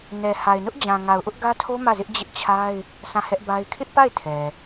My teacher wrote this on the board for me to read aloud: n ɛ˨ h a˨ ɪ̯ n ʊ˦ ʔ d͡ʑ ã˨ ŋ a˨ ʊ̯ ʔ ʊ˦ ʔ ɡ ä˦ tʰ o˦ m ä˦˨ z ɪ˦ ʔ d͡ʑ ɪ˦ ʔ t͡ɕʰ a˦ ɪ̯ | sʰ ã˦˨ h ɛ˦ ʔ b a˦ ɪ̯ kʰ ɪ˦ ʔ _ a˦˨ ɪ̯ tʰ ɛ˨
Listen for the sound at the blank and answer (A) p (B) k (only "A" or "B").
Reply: A